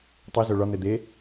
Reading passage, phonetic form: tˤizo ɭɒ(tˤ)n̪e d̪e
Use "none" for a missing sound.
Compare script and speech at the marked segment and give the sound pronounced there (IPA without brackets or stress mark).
none